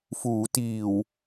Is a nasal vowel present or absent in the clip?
absent